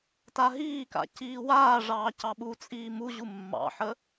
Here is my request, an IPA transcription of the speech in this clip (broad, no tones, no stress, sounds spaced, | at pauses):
t a ɦ iː k a̰ c iː w aː ʐ ɑː c ɑ ɓ u t͡sʼ iː m u ʑ u mː ɑ̰ ħ ə